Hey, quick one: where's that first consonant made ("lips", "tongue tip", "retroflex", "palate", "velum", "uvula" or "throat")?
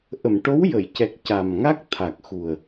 throat